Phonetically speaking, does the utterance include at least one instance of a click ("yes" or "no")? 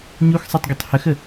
no